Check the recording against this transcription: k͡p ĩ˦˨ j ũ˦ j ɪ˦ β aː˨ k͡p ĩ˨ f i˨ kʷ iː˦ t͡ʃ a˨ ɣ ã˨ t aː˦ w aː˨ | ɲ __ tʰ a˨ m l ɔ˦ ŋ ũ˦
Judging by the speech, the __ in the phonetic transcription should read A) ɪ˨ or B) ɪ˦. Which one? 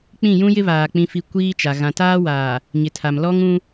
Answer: A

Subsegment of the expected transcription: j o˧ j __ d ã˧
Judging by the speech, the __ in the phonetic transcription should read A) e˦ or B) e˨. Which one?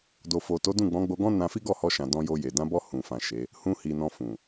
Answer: B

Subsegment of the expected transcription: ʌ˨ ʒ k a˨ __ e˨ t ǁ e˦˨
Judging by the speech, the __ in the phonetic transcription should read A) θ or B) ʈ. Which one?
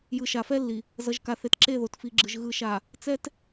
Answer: A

